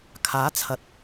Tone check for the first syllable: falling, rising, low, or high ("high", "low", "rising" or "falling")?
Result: rising